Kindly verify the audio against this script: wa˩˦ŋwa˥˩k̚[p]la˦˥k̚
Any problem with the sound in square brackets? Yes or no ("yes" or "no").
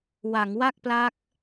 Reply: no